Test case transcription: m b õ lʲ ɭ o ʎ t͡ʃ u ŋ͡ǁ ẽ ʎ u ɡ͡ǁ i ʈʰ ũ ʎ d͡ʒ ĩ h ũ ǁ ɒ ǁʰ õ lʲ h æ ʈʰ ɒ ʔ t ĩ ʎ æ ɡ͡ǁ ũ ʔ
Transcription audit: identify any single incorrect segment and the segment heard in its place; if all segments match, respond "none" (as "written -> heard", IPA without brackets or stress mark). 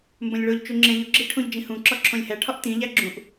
none